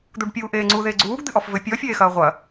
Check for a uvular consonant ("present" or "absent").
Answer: present